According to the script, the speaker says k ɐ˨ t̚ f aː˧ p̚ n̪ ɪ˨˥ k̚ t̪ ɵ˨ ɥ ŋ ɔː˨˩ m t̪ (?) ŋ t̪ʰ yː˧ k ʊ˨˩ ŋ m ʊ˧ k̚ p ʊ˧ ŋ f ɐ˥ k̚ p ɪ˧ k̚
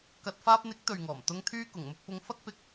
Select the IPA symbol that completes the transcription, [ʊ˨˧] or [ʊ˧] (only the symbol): ʊ˨˧